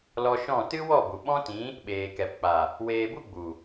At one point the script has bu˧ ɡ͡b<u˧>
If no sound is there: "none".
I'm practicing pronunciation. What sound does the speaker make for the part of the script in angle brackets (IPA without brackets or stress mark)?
u˨